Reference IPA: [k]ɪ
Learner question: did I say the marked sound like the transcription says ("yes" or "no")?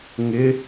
no